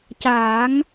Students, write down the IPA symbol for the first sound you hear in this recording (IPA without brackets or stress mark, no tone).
c